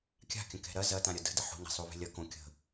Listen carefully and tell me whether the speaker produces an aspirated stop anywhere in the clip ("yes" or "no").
no